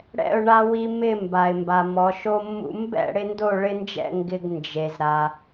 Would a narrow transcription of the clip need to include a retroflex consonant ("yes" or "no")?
yes